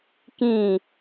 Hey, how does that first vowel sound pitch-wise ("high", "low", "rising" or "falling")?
falling